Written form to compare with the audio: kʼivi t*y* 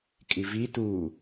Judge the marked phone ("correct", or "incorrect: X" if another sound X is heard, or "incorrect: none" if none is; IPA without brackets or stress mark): incorrect: u